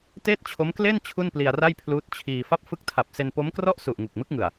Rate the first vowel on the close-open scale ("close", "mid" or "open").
mid